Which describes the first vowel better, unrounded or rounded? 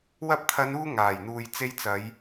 unrounded